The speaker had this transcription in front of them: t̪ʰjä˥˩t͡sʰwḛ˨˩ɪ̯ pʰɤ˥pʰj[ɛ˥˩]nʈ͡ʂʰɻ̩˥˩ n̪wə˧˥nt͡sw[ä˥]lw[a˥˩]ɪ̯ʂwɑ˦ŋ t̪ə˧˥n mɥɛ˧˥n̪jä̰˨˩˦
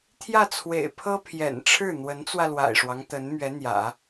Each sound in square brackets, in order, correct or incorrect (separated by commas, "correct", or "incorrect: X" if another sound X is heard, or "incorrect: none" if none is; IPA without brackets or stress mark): incorrect: ɛ̰˨˩, incorrect: ä˧, incorrect: a̰˨˩